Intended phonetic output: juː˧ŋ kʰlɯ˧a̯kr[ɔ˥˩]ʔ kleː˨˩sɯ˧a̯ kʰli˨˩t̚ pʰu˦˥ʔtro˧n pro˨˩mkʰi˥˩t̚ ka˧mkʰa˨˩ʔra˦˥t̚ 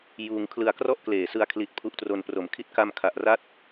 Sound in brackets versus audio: correct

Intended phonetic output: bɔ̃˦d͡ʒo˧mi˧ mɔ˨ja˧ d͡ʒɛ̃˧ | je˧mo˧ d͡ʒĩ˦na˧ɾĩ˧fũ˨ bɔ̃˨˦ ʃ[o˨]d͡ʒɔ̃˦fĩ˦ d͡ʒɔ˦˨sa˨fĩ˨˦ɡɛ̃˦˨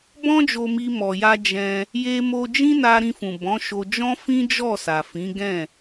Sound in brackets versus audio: incorrect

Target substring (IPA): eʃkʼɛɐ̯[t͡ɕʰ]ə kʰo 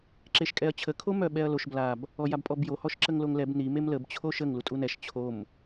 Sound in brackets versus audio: correct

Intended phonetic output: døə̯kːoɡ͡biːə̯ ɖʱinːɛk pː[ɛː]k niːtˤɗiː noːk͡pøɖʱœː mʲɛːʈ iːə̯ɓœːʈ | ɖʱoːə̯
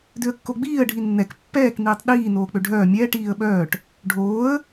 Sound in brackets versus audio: correct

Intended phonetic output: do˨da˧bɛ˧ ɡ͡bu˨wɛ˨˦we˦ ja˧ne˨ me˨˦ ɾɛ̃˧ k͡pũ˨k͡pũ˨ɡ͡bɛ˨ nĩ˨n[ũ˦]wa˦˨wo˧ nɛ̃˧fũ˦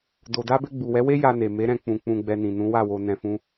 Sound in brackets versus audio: incorrect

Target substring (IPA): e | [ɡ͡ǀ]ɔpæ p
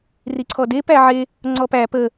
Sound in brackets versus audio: incorrect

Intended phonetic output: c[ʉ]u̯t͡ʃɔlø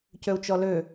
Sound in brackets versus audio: incorrect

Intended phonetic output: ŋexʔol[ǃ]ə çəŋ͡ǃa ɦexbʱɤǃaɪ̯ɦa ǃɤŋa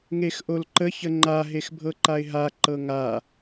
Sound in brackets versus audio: correct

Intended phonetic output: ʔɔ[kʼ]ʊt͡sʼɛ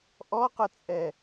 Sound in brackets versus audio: incorrect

